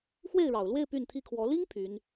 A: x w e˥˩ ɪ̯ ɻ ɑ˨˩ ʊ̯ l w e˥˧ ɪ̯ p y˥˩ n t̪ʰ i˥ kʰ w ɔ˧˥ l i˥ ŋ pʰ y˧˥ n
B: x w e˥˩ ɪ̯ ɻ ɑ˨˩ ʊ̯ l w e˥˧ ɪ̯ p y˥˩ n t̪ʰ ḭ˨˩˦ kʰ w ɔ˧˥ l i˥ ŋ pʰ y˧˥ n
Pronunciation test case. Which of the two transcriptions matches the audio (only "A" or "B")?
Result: A